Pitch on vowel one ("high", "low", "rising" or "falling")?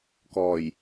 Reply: low